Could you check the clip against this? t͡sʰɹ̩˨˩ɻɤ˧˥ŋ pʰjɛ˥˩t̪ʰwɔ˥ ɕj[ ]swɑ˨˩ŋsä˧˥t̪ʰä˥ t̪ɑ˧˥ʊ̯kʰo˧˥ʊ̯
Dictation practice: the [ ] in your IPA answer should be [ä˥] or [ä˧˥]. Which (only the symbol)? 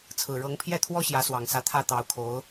ä˧˥